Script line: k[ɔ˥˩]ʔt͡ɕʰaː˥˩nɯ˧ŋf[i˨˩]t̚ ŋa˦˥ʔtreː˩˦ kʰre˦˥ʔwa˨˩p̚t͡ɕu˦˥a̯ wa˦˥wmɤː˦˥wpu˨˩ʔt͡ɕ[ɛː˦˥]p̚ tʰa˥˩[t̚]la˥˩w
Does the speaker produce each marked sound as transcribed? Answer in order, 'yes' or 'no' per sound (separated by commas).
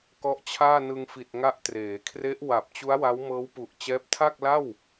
no, yes, yes, no